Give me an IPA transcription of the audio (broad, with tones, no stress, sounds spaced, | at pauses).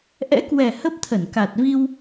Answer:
ʔ ɛ̰˧˥ k w ɛ˨˩ h ə˦˥ p̚ t̪ʰ ə˧˩ n k a˨˩ t̚ v i˧ w